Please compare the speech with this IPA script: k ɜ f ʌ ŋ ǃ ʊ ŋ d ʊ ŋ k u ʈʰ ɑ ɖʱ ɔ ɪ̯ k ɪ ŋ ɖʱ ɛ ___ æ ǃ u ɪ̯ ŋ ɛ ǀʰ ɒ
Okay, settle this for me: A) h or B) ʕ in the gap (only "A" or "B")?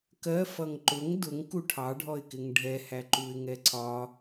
A